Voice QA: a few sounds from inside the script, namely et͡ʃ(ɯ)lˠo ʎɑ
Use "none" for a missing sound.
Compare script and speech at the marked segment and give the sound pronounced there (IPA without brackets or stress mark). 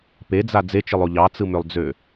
ɯ